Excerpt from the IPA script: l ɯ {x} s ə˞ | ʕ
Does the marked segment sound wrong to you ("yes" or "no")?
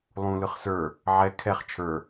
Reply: yes